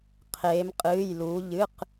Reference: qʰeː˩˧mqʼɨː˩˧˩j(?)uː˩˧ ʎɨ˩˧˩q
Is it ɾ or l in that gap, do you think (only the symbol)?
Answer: l